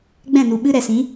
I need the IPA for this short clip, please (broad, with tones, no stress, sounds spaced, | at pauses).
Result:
ɡ͡b ɛ̃˦˨ n u˨ ɓ ɨ˧ ɾ ɛ˨ s ĩ˨˦